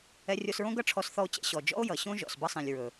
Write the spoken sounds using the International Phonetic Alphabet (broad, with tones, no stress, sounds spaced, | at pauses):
ɛ˧ rʲ o˧ s ɹ õ˦ ɡ ʌ˦ ʈ͡ʂʰ ɔ˧ s θ ɔ˧ o̯ t͡ɕ ɛ̰˧ ɕ ɔ˨ d͡ʒ ɔ̰˦ o̯ j ʌ˨ ɕ õ˦ ʒ ɔ̰˨ s b ʌ˦ sˤ ĩ˨ lʲ ɹ ɵ˨